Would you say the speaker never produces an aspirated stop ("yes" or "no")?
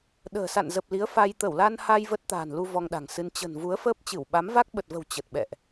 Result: yes